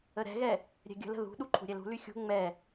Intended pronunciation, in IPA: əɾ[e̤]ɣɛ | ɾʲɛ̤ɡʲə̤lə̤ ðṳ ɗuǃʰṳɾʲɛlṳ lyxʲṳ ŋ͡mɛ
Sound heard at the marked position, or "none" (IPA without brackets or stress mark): ɛ̤